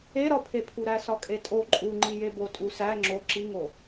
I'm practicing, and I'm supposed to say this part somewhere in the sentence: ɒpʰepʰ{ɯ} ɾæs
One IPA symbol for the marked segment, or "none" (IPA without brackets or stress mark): u